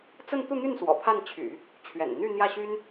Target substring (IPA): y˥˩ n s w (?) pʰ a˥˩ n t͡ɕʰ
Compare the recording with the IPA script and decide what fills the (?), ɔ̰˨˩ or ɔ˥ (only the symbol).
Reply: ɔ̰˨˩